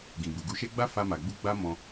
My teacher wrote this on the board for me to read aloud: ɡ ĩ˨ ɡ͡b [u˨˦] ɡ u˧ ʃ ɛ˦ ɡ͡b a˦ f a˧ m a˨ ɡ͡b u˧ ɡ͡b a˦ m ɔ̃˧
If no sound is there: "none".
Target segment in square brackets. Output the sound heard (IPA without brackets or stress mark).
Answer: u˨